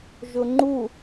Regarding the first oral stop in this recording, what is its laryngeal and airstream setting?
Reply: click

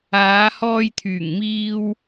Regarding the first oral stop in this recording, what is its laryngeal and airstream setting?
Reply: aspirated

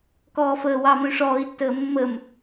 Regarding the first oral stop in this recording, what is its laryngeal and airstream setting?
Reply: plain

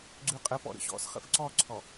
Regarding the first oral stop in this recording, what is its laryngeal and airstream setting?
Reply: click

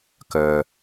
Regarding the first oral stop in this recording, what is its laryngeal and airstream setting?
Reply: plain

